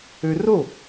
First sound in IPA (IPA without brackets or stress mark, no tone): ø